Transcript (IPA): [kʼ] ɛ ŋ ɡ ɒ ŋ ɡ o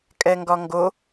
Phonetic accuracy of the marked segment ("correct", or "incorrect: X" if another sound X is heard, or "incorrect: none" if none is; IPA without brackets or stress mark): correct